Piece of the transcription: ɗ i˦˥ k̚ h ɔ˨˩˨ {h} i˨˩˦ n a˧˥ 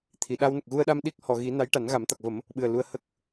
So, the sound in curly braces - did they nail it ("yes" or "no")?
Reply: no